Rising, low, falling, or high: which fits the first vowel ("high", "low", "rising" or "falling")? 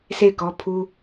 falling